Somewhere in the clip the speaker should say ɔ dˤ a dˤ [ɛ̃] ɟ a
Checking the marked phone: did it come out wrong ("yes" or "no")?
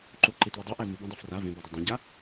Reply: yes